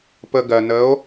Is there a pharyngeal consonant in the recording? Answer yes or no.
no